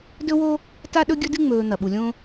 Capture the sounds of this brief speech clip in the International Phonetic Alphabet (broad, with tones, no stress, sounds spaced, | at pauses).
d ɵ˦ w o˦ | t a˦ ɗ ɵ˦ ɡʲ ɵ˦ d ɨ˦ ŋ͡m ɵː˨ n̪ ɐ˩ ɓ u˩ lʲ õ˦